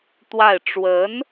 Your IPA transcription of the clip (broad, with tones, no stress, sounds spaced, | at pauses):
t̪ w a˥˩ ɪ̯ ʈ͡ʂ w ə˧˥ n